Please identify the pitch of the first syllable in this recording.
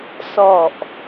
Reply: low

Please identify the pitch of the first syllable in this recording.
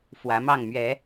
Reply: rising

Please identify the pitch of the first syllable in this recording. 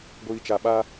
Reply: low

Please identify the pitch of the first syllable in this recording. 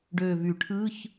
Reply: low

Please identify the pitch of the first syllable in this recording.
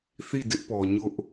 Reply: falling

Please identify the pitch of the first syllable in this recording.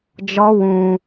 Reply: high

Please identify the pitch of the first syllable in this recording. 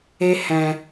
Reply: high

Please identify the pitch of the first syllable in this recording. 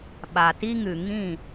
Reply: low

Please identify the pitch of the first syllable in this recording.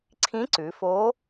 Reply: rising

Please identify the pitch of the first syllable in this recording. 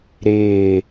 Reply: low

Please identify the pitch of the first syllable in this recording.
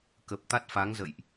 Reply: low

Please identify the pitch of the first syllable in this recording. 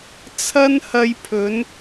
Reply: high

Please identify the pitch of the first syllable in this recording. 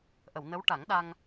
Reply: low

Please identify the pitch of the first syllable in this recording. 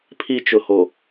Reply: high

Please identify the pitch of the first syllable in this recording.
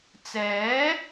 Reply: rising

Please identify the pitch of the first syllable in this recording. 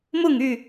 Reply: falling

